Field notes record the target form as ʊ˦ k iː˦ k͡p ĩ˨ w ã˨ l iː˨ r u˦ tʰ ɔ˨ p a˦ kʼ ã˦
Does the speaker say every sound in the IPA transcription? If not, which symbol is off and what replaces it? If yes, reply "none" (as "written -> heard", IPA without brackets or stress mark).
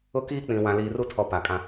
a˦ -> a˨